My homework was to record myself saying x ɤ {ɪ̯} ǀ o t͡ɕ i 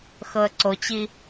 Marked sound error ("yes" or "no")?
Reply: yes